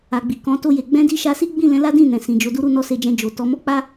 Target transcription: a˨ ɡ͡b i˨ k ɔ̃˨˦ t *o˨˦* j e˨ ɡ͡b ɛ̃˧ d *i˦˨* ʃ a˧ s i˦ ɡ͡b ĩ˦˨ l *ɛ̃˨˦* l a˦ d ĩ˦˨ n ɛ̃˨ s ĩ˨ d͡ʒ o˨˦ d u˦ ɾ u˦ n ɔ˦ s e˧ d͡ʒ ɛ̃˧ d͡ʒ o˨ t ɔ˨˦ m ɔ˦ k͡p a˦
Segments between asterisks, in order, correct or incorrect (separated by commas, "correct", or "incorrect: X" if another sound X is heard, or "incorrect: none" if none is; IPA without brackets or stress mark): incorrect: o˧, incorrect: i˧, correct